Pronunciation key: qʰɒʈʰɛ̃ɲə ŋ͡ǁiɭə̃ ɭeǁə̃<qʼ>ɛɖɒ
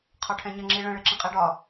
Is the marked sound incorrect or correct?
correct